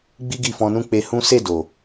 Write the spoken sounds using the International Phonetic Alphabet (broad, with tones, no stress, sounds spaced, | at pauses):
ɡ͡b i˦ ɡ i˦˨ f ɔ̃˧ n ũ˦ k͡p e˧ h ũ˦ s e˦˨ d o˨